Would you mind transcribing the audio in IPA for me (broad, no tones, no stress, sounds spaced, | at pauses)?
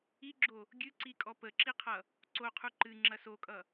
i ɡ͡ǁ o | ɡʲ ɨ ǀ i kʼ ɔ p ə ǁ i qʰ ʌ | ǀ o qʰ u ǃ ɨ ŋ͡ǁ ɐ s o kʼ ʌ